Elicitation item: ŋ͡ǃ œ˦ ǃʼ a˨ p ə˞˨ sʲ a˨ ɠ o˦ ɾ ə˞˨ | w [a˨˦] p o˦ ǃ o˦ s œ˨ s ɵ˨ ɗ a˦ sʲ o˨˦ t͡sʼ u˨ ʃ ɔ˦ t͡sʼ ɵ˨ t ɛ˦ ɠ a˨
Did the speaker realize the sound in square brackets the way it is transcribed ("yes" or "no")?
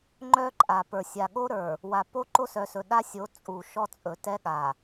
no